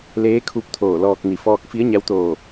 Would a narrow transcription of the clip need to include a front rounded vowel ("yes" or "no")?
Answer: no